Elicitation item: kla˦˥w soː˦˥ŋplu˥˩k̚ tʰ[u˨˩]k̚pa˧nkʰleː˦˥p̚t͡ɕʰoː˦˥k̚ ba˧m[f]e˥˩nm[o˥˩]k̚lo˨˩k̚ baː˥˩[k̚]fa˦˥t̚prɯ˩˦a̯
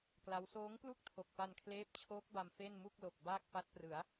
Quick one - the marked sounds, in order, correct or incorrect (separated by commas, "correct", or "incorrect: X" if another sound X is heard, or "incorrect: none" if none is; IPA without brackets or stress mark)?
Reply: incorrect: o˨˩, correct, incorrect: u˥˩, correct